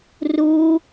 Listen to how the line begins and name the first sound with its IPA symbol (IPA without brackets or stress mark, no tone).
r